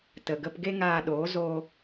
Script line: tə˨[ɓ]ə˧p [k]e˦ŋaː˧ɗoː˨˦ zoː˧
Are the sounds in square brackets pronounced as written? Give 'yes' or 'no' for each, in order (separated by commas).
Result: no, no